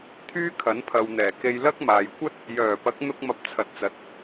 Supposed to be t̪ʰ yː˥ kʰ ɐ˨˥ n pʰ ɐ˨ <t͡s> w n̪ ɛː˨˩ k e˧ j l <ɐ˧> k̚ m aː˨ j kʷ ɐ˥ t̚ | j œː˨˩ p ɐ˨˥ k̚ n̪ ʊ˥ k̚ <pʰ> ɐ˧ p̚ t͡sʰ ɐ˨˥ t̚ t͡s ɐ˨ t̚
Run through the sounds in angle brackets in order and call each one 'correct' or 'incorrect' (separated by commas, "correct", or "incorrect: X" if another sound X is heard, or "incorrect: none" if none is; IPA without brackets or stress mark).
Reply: incorrect: none, incorrect: ɐ˥, incorrect: m